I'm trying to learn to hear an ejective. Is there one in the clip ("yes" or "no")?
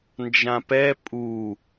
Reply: yes